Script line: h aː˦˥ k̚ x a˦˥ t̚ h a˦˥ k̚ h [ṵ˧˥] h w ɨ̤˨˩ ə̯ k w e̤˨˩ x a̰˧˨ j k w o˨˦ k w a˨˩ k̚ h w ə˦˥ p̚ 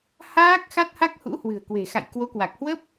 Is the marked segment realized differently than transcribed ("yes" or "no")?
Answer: no